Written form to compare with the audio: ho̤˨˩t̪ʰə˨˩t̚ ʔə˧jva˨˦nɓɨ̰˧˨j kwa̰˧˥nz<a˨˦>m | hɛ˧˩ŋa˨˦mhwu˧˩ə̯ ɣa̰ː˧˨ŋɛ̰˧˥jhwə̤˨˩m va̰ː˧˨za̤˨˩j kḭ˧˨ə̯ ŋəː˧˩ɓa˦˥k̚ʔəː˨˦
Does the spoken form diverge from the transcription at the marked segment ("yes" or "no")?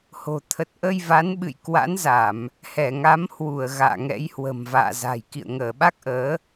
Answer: yes